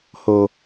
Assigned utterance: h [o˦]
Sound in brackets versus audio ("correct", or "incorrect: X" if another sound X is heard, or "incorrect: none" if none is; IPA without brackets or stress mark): incorrect: o˨